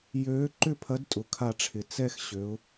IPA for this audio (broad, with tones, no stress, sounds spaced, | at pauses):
j øː˨˥ ǃ ʏ˥˧ pʰ ɐ˨˥ d tʼ ʊ˩ kʰ a˧˩ ʈ͡ʂʰ ɪ˩ t͡s ɛ˥˧ x ɕ ø˩˧ ʊ̯